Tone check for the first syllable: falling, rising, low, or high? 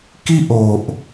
high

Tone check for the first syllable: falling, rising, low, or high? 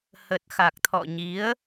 low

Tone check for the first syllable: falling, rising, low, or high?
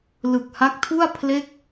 low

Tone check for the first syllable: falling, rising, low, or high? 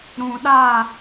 low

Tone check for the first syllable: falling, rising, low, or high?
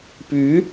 rising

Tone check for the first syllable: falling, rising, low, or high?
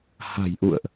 low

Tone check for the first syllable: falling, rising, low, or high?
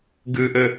low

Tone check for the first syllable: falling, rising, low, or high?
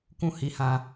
high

